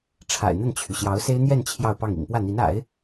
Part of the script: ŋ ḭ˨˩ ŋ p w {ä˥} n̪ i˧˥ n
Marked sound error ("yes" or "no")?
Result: yes